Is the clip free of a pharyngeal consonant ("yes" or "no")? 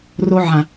no